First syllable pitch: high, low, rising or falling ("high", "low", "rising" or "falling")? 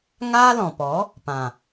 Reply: high